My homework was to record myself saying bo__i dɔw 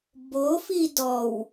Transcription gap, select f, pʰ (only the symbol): f